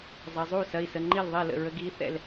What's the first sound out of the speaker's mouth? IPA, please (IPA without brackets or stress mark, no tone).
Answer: zˤ